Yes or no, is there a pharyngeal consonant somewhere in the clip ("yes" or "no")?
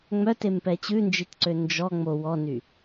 no